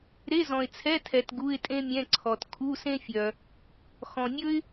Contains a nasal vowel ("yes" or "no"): yes